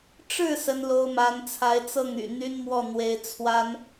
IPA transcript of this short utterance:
ʈ͡ʂ ɻ̩˥˩ s ə˥ n l o˥ ʊ̯ m a˧˥ n t͡sʰ a˧˥ ɪ̯ t͡s ɤ˥˩ ŋ y̰˨˩ n̪ y˥ n m w ɔ˥˩ n̪ w e˧˥ ɪ̯ t͡sʰ w a˥ n

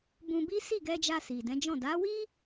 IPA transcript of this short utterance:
b ũ˧ b i˦ s i˦˨ ɡ ɛ˧ d͡ʒ a˧ s i˨ d ɛ̃˨˦ d͡ʒ ɔ̃˦˨ d a˨˦ w i˦

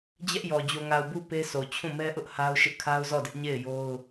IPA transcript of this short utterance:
d͡ʑ ɛ˦ ʔ j ɔ˨ d͡ʑ o˨ ŋ a˨ ʊ̯ b u˦ p e˦ s o˨ t͡ɕʰ ũ˦˨ m ɛ˦ ʔ ʊ˦ ʔ h a˦ ʊ̯ ʃ ɪ˦ ʔ kʰ a˦ ʊ̯ z ɔ˦˨ d ɪ˦ ʔ ɲ e˦˨ ɪ̯ j o˦ ʊ̯

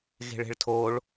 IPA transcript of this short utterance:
ɣ e̤ ɭ e̤ ɭ tʰ o ɭ

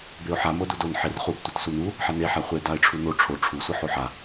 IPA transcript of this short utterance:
b e ʊ̯ ħ a m ɤ d u d o n ħ e r χ u b tʷ ɤ t s u n u | ħ a n e ħ a χʷ e d a ɪ̯ ʈ͡ʂʰ u n o ʈ͡ʂʰ o ʈ͡ʂʰ u sʷ ɤ ħ o ħ a

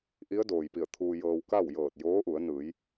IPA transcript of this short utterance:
ʔ i˧˥ ə̯ d oː˩ j p i˧˩ ə̯ t̪ʰ uː˧ j ɤː˧ w k a˥˨ w j ɤː˧˩ t̚ j oː˧˥ ʔ u˩˧ ə̯ n ɯː˩˧ j

